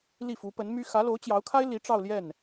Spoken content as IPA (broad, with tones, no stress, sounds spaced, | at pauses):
l i˥˩ f u˧˥ p ə˧˥ n m y˥ x ä˧˥ l o˧˥ ʊ̯ t͡ɕ j ɑ˧˥ ʊ̯ kʰ a˥ ɪ̯ l i˧˥ ʈ͡ʂ ɑ˥˧ ʊ̯ l j ɛ˥˩ n